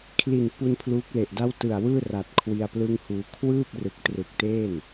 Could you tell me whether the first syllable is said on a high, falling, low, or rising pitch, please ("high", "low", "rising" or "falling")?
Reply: low